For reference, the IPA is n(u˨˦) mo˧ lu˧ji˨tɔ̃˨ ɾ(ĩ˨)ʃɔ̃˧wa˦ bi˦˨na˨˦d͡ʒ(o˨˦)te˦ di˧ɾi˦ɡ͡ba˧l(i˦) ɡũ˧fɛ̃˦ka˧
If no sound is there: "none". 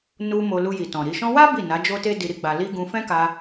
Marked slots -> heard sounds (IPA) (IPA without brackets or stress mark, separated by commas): u˧, i˨, o˦, i˦